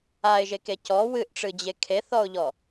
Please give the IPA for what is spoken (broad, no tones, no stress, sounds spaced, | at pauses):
a ɪ̯ ʒ e k e c ɔ w ɨ ʔ ʈ͡ʂ ɨ d͡ʑ e kʰ e θ ɔ ʊ̯ ʎ ɔ